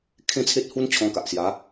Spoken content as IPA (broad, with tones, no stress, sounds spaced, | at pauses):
kʰ ẽ˥˧ t͡sʰ e˦ t̚ h u˦ n t͡ɕʰ ɔ̃˧ k a˨ ʔ s j a˨˦